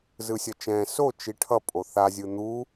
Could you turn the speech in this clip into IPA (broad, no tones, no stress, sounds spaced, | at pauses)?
z ɯ sʲ ʌ t͡ʃ ɛ̃ː s o t͡ʃ i ʈʰ ʌ pʼ o θ a zʲ ɯ n̪ u